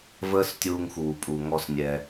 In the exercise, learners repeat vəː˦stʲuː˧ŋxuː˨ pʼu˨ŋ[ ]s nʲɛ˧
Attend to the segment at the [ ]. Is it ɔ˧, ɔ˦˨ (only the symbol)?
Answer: ɔ˧